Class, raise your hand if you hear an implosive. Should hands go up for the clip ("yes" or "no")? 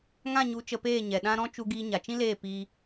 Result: yes